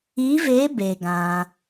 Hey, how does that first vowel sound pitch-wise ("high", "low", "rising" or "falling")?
rising